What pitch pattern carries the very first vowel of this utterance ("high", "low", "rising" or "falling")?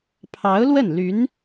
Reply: rising